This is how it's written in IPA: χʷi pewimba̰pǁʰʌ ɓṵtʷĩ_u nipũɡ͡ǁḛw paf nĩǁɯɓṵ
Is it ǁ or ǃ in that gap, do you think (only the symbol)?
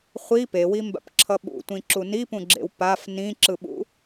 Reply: ǁ